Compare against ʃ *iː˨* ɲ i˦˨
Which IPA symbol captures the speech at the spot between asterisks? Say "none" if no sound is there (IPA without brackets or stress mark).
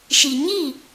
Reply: i˨